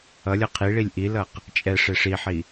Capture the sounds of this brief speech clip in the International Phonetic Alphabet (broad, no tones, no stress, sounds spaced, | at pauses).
ʌ lʲ ʌ qʰ i ɭ i lʲ ʔ i l ʌ q | t͡ʃʼ ɛ ʂ e ʂ i ħ i